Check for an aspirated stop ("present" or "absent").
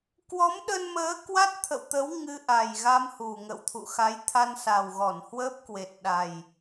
present